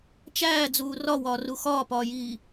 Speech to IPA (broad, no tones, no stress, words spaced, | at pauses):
t͡ʃæːd͡zuː rɒwɒːru xɒːpɒːjiː